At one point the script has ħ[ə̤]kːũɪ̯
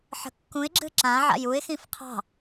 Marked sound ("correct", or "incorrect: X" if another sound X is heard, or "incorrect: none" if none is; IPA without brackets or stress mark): correct